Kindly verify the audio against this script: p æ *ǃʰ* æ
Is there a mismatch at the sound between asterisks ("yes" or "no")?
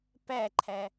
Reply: no